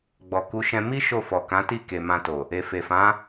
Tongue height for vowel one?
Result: mid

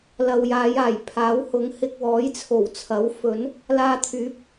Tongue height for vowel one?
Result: low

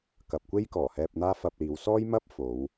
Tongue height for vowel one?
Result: low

